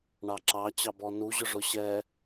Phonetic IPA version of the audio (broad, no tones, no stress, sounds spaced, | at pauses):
ɳ ɑ ǁ ɑ t͡ɕ ɑ b ɔ n u ʑ ʊ ʐ ʊ ɕ ɛ